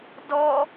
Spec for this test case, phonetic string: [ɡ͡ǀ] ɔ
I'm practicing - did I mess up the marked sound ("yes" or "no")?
yes